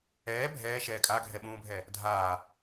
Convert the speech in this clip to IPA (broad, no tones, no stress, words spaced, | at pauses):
ɛː bʱɛːʃɛː kʼaɡʱɛɓũːbʱɛ | dʱaː